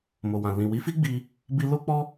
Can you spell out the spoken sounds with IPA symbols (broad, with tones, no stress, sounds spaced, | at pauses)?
m o˨ w ã˨ l ĩ˨ w i˨˦ f i˦ ɡ͡b i˧ | b i˧ l o˦ k͡p ɔ˦